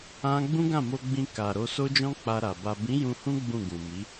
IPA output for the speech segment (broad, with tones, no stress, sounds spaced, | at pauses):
ã˦ ɡ͡b ũ˦ ɡ ã˦˨ m o˧ ɡ͡b ĩ˧ k a˨ ɾ o˧ s o˦ d͡ʒ ɔ̃˦ k͡p a˧ ɾ a˨ b a˨ b ĩ˨˦ j ũ˧ h ũ˦ ɡ͡b ũ˦˨ ɡ ũ˨ m i˨˦